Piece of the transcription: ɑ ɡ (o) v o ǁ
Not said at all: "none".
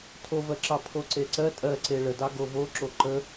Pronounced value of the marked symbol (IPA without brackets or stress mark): o